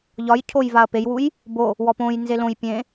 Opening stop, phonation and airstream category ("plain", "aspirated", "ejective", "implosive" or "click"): aspirated